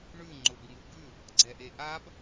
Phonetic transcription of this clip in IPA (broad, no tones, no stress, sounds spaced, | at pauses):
ɳ ʉ ŋ͡ǃ ʊ b ŋ u b ʉ | ɡ͡ǀ ɛ ʔ e ʔ a b